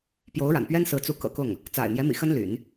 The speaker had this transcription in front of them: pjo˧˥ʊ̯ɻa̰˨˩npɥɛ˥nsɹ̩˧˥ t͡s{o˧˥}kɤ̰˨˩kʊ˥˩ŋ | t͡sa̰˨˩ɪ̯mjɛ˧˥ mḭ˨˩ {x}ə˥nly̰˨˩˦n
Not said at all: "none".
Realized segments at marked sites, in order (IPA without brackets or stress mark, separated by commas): u˧˥, x